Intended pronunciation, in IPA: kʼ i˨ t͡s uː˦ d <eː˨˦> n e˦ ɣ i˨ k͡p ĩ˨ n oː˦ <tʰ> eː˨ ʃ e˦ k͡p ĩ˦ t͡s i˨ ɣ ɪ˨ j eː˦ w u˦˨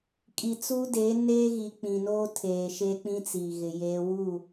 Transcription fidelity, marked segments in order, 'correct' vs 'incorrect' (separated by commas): correct, correct